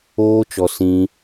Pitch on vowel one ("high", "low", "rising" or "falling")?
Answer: high